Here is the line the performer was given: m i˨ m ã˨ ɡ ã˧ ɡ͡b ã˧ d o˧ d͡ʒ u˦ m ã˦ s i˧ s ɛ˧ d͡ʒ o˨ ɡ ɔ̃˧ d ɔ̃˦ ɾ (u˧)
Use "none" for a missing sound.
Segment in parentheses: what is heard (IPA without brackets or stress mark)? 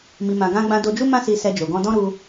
u˧